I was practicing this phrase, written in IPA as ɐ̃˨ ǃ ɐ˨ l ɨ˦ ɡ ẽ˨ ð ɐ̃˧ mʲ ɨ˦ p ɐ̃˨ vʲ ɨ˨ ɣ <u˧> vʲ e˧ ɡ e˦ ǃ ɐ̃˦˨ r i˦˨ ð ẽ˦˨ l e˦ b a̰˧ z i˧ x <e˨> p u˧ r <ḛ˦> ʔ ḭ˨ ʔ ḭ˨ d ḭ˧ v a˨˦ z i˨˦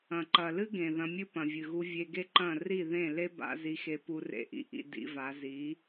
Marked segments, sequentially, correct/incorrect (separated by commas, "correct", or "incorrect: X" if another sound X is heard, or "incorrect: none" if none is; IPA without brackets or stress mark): correct, incorrect: e˧, incorrect: ḛ˧